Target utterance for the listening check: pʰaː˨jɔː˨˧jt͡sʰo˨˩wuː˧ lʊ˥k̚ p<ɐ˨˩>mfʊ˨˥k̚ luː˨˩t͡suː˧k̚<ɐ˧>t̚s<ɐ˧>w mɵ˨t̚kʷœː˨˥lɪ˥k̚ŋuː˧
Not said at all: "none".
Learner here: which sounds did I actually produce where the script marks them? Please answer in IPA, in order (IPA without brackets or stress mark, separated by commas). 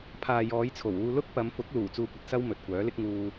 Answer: ɐ˨˧, ɐ˧, ɐ˥